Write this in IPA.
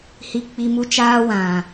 h i˧ k͡p i˧ m u˦ t͡ʃ aː˦ w ã˨

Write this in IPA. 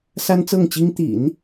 s a˥ n t͡s ɤ˥˩ ŋ t͡ɕ i˥ ŋ t̪ ḭ˨˩˦ n

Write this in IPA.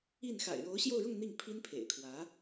i˥˩ n x a̰˨˩ ɪ̯ ɻ o˧˥ ʊ̯ ɕ j o˥˧ ʊ̯ ɻ ʊ˥˧ ŋ n̪ i˥˩ ŋ pʰ i˥ n pʰ ḛ˨˩ ɪ̯ kʰ w ä˧˥

